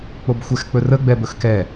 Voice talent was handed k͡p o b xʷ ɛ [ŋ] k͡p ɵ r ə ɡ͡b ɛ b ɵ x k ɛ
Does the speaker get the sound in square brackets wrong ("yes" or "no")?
yes